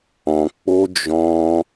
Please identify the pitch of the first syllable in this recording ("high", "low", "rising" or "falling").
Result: low